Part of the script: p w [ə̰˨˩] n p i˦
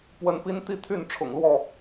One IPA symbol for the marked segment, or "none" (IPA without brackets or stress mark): ə˨˦